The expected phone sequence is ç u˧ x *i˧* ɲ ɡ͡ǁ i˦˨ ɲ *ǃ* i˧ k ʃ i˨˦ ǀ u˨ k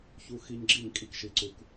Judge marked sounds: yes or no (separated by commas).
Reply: yes, no